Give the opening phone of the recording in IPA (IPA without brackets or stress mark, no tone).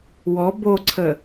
w